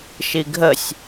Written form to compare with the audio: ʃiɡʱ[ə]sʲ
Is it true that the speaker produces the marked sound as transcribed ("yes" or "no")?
yes